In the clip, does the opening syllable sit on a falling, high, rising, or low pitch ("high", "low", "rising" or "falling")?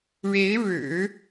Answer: rising